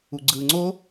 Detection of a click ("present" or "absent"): present